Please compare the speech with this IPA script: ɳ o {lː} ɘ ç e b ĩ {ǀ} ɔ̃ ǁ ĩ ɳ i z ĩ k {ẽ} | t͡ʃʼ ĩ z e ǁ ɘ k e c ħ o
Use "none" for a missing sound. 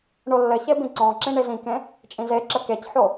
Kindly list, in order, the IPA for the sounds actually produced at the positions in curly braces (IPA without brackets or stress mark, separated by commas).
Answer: lː, ǀ, ẽ